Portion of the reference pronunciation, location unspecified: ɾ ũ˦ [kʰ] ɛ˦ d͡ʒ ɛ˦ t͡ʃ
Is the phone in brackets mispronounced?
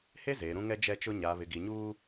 yes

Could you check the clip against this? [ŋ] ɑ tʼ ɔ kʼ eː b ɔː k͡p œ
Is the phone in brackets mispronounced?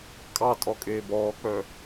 yes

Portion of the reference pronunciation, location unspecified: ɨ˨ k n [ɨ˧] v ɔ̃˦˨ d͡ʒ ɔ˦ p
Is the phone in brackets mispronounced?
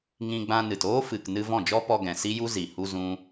no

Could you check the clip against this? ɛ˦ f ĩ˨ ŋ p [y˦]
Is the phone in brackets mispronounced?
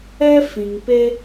yes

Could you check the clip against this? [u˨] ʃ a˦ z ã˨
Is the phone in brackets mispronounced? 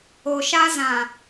yes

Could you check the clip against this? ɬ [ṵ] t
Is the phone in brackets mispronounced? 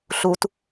yes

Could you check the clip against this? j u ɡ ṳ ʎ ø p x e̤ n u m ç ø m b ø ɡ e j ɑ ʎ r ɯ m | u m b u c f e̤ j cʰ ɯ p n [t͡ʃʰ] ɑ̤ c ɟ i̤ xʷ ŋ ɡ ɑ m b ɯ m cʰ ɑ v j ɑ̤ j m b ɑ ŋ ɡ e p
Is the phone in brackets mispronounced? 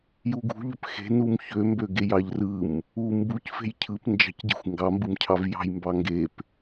yes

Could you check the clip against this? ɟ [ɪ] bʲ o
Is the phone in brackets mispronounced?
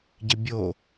no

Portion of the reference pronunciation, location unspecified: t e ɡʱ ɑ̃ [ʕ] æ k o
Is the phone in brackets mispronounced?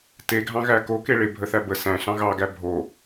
yes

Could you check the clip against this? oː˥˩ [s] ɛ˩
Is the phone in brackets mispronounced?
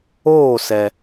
no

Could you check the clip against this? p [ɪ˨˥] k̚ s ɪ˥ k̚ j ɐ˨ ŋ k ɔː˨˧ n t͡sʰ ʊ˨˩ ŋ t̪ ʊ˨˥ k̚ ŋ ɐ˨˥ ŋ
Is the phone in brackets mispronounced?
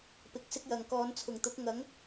no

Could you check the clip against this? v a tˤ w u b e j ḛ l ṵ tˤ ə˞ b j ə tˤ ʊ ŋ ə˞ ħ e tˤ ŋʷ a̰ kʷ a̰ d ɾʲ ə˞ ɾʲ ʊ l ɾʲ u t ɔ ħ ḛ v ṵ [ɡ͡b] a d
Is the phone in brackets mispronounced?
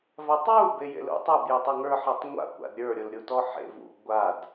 yes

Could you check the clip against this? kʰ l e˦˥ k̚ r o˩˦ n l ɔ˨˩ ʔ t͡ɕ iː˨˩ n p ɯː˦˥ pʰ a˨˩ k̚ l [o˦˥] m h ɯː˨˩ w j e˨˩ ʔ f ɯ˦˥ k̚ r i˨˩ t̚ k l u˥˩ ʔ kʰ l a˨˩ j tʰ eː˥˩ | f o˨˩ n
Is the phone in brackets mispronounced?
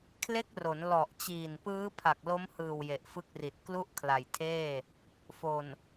no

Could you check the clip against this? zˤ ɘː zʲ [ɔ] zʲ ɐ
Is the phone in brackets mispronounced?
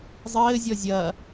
no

